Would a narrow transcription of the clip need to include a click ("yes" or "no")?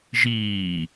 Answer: no